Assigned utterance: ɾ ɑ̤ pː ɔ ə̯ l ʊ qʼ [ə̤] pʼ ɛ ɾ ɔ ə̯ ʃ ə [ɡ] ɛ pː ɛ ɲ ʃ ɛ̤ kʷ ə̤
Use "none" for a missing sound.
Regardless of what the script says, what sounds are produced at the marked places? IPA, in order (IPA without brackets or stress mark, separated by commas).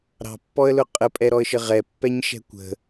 ə, ʁ